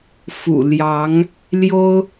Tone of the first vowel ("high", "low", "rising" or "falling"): low